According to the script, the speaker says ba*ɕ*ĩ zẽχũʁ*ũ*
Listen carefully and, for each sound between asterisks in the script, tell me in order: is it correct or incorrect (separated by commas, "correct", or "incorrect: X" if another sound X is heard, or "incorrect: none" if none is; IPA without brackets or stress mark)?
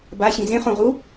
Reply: correct, incorrect: u